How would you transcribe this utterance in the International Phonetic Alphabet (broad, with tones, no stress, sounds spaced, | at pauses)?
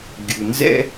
ɡʲ u˩ n z ɛ̰˥